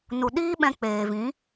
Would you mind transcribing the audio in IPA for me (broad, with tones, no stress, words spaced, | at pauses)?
nu˨ɗiː˦ɓɛ̃˧ k͡peː˨vĩ˨˦